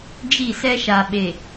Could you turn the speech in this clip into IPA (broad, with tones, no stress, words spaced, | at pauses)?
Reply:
d͡ʒi˦˨sɛ˦ʃa˨ɓe˨